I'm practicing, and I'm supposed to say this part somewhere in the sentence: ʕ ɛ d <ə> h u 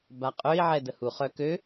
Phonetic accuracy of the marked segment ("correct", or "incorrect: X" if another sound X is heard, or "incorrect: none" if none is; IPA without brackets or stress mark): correct